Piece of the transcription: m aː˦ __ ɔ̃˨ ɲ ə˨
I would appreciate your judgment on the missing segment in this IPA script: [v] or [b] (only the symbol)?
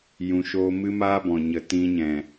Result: b